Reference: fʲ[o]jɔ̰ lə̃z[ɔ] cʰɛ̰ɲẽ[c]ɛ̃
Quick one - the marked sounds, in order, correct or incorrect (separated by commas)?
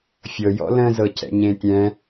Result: incorrect, incorrect, incorrect